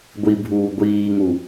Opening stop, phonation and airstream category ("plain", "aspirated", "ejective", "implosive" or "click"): plain